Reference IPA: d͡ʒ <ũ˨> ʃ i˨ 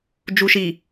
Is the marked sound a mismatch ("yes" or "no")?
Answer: yes